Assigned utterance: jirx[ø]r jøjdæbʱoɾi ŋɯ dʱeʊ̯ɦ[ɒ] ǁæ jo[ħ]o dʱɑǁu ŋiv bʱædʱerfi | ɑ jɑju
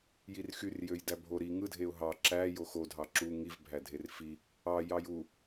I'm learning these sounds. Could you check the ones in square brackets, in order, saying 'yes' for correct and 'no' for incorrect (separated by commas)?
no, no, no